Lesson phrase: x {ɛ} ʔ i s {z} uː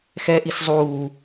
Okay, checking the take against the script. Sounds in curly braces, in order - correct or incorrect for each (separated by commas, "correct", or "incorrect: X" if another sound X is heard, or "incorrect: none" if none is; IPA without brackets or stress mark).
correct, incorrect: zˤ